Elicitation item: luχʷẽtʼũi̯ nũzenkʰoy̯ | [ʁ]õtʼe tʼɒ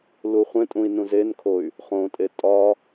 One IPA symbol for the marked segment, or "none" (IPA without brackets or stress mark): χ